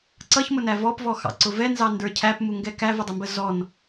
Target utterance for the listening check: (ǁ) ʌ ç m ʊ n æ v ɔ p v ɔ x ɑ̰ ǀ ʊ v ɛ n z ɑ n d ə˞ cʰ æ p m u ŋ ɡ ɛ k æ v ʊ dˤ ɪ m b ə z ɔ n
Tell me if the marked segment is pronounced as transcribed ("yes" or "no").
no